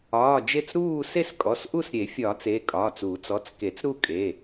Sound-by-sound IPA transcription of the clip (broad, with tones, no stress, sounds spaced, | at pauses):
ɒː˩˧˩ d͡ʒ e˥˧ t͡s ɾ uː˥˧ s e˥˧ s kʼ ɔ˩˧˩ s ʔ u˥˧ s ɾʲ e˨˩˦ fʲ ɒː˨˩˦ t͡s e˩˧˩ kʼ ɒː˩˧˩ t͡s uː˨˩˦ t͡s ɔ˩˧˩ t͡s k e˨˩˦ t͡s ɾ u˥˧ kʼ e˩˧˩